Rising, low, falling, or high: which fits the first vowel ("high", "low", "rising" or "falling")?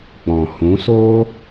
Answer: low